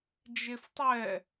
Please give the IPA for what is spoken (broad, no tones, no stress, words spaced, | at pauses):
d͡ʒeftˤɛ